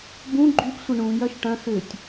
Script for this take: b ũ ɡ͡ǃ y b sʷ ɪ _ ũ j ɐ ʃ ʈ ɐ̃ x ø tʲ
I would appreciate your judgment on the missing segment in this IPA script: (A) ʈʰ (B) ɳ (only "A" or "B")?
B